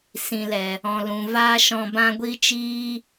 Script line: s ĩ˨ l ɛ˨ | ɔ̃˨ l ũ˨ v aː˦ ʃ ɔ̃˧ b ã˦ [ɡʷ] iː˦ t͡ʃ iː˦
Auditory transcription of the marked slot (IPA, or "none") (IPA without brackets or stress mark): ɡʷ